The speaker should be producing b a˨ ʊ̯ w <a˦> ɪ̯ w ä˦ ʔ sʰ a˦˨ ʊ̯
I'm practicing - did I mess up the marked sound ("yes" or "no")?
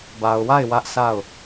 yes